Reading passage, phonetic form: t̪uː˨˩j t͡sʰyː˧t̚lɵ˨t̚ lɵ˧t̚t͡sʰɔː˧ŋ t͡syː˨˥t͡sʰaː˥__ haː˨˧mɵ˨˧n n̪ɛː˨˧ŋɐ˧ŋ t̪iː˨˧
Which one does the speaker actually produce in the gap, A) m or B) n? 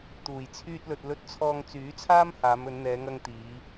A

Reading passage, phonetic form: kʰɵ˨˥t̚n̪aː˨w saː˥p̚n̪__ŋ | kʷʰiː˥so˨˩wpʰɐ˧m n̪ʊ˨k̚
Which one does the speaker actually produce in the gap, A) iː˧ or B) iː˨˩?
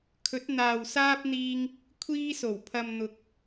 A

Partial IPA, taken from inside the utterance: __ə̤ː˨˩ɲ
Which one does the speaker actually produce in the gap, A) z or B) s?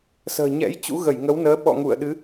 B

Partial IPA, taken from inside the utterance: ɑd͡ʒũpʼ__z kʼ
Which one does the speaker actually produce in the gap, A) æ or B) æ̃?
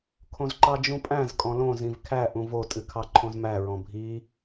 B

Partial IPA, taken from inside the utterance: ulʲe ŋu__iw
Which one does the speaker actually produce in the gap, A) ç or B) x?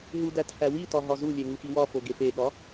B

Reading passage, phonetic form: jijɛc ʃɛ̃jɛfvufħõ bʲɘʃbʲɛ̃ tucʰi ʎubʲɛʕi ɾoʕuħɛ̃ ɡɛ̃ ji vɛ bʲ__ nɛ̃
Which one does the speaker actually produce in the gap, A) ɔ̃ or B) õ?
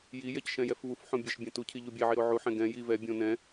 B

